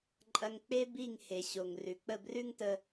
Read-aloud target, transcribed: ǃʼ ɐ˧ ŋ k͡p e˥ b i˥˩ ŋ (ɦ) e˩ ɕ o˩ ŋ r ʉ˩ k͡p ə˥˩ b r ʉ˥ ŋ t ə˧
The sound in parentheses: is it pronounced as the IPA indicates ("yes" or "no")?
no